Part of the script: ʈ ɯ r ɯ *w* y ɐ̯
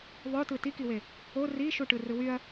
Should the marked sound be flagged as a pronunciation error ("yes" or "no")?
no